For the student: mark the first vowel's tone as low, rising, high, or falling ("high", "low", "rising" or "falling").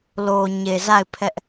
low